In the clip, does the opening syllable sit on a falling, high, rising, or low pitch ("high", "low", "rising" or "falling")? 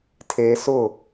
high